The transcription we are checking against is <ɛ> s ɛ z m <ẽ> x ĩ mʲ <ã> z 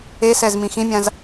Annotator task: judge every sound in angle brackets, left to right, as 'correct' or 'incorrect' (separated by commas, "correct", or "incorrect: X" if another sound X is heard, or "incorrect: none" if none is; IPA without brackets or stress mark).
incorrect: e, incorrect: ĩ, correct